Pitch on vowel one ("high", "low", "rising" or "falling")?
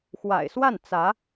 low